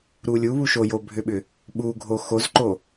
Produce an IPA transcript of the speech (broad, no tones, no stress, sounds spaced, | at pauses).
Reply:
ɾ u lʲ u β u ʃ o j o bʱ ʏ ɓ ʏ | ɓ u ɡʱ o x o z ǃ o